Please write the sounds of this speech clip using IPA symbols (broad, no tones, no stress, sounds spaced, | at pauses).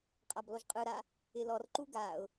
qʼ a b lˠ u ʒ qʼ ɯ ɾ a | ɪ l ɔ r ǃ u ɡ a ʊ̯